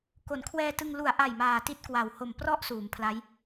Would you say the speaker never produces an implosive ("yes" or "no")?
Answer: yes